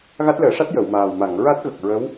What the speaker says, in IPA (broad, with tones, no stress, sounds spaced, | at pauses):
ɣ a˦˥ t̚ l əː˨˩˦ ʂ a˦˥ t̚ j ə˨˩˨ w m aː˨˩ w m a˨˩˨ ŋ ɹ a˦˥ t̚ ɣ ə˨˩ k̚ ɹ ə˧˥ w